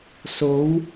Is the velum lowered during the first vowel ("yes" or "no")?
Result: no